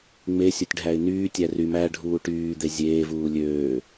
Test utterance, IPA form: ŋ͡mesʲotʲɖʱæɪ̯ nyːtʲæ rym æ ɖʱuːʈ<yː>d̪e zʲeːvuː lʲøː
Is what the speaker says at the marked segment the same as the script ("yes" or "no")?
yes